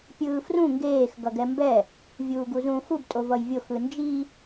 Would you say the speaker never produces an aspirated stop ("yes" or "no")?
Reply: yes